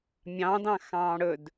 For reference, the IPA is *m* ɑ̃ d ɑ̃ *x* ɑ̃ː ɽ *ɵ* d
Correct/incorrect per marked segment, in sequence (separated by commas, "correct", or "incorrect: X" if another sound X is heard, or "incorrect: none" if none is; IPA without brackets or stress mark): incorrect: mʲ, correct, correct